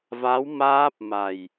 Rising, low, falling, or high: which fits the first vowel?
rising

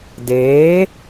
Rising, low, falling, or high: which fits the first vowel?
rising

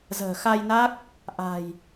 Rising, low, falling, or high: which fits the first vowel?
low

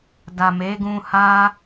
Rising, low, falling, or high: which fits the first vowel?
low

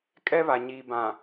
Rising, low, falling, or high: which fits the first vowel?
high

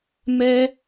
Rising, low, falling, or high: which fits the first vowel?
high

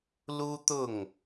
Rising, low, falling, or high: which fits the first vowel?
high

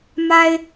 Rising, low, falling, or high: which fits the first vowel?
high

